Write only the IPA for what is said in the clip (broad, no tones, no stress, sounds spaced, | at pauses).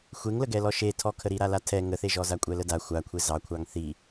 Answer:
xʷ e ŋ l ə ɡ ɛ l ɔ ʃ e tʰ ɔ kʰ ə ɾ i ɾ a l a tʰ ɛ ŋ ə θ e ʒ ɔ z a kʷʼ ɛ l ə d a xʷ a kʷʰ e z ɑ kʷʰ ɑ ŋ θ i